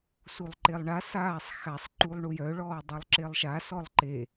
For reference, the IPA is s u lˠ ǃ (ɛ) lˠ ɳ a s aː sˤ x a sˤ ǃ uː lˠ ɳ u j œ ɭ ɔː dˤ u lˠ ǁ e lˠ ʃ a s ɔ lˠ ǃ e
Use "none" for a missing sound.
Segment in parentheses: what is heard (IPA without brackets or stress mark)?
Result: e